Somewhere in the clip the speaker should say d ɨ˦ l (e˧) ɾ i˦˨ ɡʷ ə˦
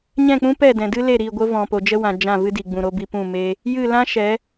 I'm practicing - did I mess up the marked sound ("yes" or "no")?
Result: yes